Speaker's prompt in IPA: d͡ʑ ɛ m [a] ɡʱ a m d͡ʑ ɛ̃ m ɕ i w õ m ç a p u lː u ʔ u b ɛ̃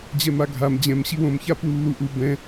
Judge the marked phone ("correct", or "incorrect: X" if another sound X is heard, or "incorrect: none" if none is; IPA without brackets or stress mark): correct